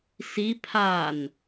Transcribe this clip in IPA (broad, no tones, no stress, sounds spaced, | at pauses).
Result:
s i pʰ a n